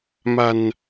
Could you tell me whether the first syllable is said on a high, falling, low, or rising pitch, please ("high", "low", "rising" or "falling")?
low